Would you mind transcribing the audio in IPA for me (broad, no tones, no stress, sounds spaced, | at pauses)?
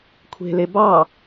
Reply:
kʷʰ e̤ l e b ɑ